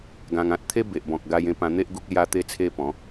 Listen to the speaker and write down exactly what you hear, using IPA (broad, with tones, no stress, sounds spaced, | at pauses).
ɡ ã˧ ŋ ã˦ t̚ t̪ʰ e˦ b e˨ ʔ b ɔ̃˨ k̚ ɡ a˧ j ẽ˧ p ã˧ n̪ e˦ ʔ ɡ u˦ k̚ l j a˦ t̪ e˦ t͡sʰ e˦ p ɔ̃˨˦